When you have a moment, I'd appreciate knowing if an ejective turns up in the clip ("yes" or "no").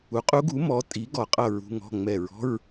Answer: yes